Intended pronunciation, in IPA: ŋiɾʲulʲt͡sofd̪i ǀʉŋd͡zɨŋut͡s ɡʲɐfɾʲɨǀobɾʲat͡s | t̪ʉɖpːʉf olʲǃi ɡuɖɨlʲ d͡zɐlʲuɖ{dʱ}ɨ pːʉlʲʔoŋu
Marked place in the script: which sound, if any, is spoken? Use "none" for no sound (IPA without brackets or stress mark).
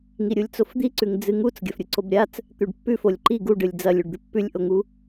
d̪